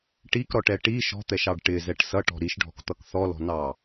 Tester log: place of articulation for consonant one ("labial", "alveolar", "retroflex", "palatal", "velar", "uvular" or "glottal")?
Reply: retroflex